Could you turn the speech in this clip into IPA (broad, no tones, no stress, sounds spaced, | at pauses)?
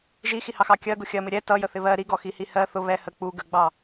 ʒ i x i h ɑ x ɑ kʲ ɜ ɡ ʊ xʲ ɜ m ɪ ɾʲ ɛ t ʌ j ə θ ɪ β ɜ ɾ i ɡ ɔ x i h i h ɜ θ ʊ β ɛ h ə k͡p u ɡ ə ɡ͡b ɑ